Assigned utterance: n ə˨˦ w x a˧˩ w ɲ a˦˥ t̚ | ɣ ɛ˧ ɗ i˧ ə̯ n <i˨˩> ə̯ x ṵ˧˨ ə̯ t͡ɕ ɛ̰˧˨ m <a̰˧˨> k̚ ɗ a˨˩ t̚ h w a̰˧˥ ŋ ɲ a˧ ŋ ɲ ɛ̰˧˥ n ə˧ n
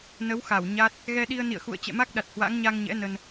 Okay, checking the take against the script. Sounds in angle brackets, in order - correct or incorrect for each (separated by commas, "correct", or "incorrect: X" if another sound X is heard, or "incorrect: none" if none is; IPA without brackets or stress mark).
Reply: incorrect: ḭ˧˨, incorrect: a˦˥